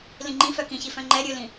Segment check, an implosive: absent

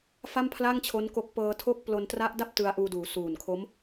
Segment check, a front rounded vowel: absent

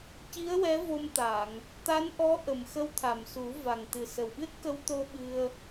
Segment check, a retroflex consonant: absent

